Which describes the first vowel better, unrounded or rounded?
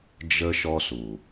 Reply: unrounded